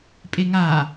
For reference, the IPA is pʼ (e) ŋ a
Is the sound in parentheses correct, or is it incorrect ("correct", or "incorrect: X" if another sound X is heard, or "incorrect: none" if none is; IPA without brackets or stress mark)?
correct